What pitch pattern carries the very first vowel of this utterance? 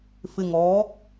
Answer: low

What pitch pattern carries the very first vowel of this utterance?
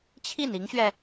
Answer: falling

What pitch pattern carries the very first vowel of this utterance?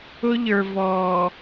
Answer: high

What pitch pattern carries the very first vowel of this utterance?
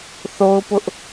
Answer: high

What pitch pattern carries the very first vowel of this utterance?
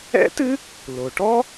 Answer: high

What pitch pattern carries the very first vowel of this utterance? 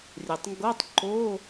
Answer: low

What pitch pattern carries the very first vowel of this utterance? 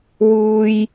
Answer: low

